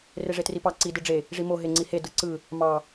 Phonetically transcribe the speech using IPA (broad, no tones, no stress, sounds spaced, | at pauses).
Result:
r e ʐ e t r i p ɑ ǀ i d ɯ ɖ͡ʐ e | ʐ i m o ɦ e ŋ͡ǀ i h e d ɯ ǀ ɯ | m ɑ